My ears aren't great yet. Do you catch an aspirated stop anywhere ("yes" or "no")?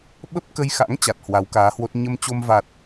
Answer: no